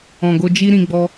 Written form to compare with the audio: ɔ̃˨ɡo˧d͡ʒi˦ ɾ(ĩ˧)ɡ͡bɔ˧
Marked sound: correct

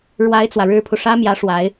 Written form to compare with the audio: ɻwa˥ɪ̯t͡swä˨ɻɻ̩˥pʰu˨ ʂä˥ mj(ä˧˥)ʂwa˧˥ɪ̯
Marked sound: correct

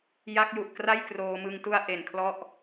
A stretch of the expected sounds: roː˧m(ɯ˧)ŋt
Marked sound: correct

